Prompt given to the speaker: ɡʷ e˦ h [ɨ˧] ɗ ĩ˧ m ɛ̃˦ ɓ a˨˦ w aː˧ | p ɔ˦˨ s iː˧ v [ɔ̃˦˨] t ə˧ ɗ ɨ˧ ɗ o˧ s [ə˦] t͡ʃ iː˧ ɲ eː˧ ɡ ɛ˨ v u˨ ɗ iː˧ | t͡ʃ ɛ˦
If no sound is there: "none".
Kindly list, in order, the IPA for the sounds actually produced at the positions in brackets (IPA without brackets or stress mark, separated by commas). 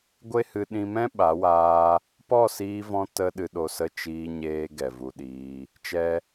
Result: ɨ˧, ɔ̃˧, ə˦˨